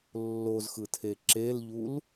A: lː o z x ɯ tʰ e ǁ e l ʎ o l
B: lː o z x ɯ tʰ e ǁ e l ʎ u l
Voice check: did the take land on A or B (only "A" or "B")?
B